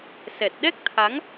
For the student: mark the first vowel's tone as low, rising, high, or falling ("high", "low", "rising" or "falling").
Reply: low